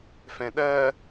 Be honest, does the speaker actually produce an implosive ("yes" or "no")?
yes